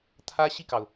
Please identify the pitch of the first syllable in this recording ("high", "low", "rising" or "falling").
high